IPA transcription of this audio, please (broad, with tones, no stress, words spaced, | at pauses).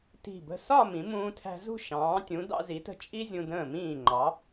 ti̤˧˩bə̤˧˩sɒ˥˧ mĩ˩˧mũː˧tʰæ̤˧ zṳ˥˧ ʃɑ̃ː˩˧tʲũ˩˧ dɑ̰˧zi˩˧tə̤˧ t͡ʃʼi˥zʲũ˧ də̃ː˧˩mĩː˧˩ ŋ͡ǃɑ˩˧